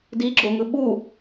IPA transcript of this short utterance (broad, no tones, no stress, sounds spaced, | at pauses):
d i ɡ͡ǁ o ŋ ɯ ɓ u